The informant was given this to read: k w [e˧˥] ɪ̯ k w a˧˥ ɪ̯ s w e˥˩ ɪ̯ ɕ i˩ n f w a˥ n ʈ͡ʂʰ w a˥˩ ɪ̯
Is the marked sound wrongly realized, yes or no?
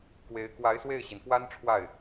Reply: no